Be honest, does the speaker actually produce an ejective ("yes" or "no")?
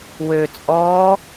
yes